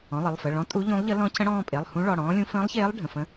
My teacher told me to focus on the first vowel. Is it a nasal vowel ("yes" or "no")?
yes